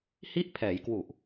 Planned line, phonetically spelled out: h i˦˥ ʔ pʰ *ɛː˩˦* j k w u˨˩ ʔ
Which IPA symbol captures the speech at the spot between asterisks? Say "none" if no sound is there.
ɛː˩˦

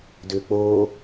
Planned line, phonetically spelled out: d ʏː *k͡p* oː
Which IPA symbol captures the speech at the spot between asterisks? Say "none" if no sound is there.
k͡p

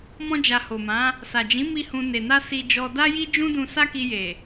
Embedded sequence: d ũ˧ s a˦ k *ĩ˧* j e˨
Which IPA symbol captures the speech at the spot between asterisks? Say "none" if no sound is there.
i˧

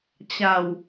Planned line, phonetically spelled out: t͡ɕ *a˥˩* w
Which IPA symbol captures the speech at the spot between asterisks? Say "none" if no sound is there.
a˨˩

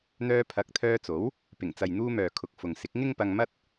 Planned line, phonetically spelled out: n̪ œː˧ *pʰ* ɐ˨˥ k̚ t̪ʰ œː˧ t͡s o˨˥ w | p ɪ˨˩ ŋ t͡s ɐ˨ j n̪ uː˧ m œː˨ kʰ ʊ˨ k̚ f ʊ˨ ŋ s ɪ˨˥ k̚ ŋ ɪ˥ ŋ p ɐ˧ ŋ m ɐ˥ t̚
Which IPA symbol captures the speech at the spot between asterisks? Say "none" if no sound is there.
pʰ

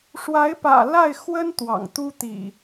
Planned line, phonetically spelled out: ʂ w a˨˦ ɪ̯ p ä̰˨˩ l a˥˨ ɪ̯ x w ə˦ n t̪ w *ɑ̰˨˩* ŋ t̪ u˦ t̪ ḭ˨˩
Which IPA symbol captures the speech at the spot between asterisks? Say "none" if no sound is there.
ɑ̰˨˩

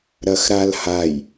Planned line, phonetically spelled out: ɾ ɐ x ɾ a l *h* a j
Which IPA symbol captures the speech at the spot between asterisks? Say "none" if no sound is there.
h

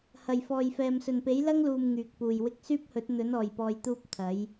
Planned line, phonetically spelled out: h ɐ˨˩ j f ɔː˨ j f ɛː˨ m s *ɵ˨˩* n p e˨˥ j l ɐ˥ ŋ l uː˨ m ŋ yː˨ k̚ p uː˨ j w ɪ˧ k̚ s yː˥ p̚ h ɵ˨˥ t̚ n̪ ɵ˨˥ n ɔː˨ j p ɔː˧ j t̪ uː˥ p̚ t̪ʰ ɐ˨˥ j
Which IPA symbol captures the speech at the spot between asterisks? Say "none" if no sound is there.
ɵ˨˩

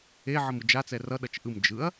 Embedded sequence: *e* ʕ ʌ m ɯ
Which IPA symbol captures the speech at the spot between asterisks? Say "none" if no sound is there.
e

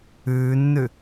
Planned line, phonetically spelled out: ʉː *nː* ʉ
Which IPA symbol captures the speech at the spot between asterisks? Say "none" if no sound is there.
nː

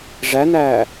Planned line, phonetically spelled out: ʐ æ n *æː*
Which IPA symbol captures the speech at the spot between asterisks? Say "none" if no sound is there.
æː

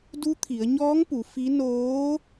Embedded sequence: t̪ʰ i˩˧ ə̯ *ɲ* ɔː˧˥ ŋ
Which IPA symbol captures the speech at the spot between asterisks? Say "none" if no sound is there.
ɲ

